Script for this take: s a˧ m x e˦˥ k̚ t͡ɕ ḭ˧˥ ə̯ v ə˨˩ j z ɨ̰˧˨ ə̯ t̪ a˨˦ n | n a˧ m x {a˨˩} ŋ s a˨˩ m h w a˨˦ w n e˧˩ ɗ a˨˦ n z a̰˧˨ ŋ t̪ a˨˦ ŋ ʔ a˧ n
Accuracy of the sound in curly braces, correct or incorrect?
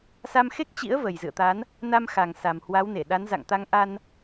correct